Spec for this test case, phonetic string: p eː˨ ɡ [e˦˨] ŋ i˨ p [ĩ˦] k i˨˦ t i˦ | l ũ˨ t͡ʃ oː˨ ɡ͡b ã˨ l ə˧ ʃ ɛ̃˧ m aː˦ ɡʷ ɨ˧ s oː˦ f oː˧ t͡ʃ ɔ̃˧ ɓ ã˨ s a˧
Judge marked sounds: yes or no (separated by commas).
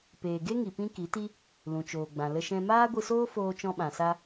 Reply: no, yes